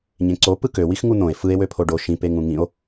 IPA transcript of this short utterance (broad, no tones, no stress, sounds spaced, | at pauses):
ɲ ẽ ǀ o p ɯ k ø w i x ŋ u n̪ õ e̯ f ɯ e̯ w ø pʰ o ɖ o ʃ ĩ p e ŋ ũ ŋ ĩ o̯